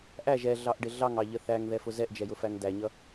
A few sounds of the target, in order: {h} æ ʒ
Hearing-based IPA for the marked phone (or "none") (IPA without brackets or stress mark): ʔ